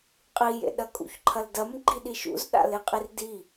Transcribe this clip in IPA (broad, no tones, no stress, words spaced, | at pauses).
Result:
qʼijḛɗɐ kʼṵçǃʰɐldɐm ɡ͡ǃiɗiʃṵz ɗa̰leqʼirdi